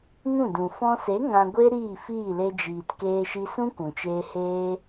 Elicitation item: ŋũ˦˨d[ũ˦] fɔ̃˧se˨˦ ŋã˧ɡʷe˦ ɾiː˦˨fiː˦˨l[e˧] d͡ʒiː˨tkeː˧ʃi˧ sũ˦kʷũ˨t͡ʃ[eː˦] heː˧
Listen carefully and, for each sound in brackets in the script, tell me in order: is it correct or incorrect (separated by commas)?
incorrect, correct, incorrect